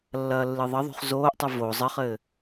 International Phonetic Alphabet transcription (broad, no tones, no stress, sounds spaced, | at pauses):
lː ɐː lː ɨ ðˤ ɘ ðˤ ṳ χ z oː ʔ tˤ ɨ v o zˤ ɘ χ ɘː